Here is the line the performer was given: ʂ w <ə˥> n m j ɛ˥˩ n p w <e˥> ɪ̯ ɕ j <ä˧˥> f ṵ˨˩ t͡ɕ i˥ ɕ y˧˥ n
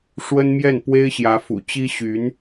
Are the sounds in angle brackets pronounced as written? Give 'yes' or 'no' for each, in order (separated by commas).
yes, yes, yes